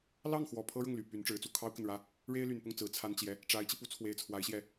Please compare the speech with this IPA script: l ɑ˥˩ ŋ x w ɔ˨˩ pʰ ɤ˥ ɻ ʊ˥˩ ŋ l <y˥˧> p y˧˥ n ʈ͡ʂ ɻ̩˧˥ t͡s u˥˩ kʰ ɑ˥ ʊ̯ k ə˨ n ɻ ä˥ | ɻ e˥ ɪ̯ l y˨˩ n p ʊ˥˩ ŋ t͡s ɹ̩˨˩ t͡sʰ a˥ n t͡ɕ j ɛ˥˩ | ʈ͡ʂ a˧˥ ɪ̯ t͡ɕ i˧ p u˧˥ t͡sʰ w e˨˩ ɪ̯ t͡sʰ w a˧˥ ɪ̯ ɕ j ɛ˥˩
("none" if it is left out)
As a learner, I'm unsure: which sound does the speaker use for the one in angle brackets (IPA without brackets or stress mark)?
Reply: y˨˩